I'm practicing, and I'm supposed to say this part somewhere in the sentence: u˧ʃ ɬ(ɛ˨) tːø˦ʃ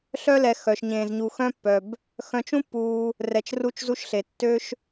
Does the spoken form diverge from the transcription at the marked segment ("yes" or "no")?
yes